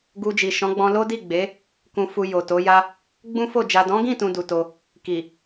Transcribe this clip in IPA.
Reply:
ɡ u˧ d͡ʒ i˨ ʃ ɔ̃˨˦ ɡ͡b ɔ̃˧ l o˦ d i˦˨ ɡ͡b e˨˦ | k ũ˧ f u˧ j o˨ t o˨˦ j a˦ | ɡ͡b ũ˦ f o˦˨ d͡ʒ a˨ d ɔ̃˨˦ ɡ ĩ˦˨ t ũ˨ d u˨ t o˧ | k i˨

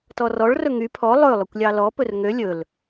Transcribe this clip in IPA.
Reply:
t ɔ r ɔ ɭ r ɵ ŋ y pʰ ɔ lˠ ɵ lˠ ɵ kʷ lʲ ɑ l ɔ p ɵ r ŋ ø lʲ ɵ l

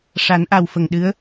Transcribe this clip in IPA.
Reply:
ʂ a˨˩˦ n ʔ a˨˩ w f ə˨˩ ŋ ɗ ɨ˧˥ ə̯

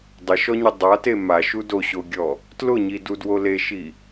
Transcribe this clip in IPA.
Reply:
dˤ ɪ ʃ ɔ ɲ i dˤ a t e m a ʃ u d o ɕ o ɡʲ ɔ | t l ʊ ɲ i d u d w o l e ʃ i

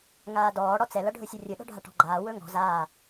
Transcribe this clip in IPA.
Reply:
ŋ aː d ɔː ɽ ɔ t͡s ɛ l ʌ ɖʱ ɵ sʲ ʌ rʲ ɵ ɗ ɔ̤ ɖʱ a ʈ ɔ̤ ɡ͡ǃ aː w ɵ ŋ ɔ̤ z aː

